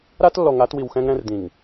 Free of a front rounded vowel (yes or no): yes